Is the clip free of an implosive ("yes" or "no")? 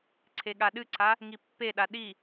no